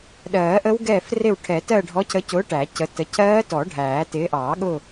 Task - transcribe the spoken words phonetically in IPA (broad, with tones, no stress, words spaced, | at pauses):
ɗɜː˨˩˦ʔə˦˥w ɡɛ˦˨frɪ˦˨w ʈʰɛ˨˩˦tɜ˦˨ ɖʱɔ˨˦cʰə˨˦cʊː˨˦ ʈæ˨˩˦cə˨˦ tə˨˦ cʰɜː˦˥tɔ˨˩˦ ɖʱæː˨˩˦ tɪː˨˦ʔɑː˨˩˦ɠʊ˦˨